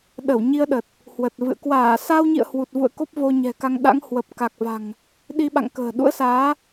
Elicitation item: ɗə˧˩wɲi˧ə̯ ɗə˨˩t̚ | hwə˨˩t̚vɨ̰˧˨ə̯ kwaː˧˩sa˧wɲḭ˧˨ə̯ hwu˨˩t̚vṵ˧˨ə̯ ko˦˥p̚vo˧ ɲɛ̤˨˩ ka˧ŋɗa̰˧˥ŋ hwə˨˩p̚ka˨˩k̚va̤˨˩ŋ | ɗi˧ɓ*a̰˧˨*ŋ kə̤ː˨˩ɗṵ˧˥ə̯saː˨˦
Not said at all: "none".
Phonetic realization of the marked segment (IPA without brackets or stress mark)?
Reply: a̰˧˨